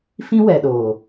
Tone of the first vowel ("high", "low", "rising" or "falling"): high